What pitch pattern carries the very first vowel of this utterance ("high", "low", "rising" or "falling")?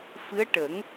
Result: rising